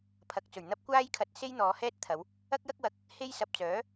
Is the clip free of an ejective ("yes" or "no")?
yes